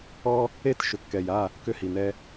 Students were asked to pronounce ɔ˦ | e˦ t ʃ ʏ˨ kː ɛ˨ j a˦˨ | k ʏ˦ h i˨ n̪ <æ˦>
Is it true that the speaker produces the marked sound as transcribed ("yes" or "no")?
no